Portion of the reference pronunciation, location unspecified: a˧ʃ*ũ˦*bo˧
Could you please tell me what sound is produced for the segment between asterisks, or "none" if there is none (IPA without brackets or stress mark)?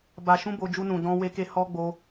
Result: ũ˦